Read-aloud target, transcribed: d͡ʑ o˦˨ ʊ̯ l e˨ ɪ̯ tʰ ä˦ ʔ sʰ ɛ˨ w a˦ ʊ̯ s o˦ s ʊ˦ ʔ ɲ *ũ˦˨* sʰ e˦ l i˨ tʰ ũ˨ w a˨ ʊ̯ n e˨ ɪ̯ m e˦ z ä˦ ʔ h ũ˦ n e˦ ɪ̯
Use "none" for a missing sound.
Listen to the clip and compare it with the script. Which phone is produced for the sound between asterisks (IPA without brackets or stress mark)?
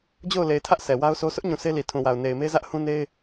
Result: ũ˨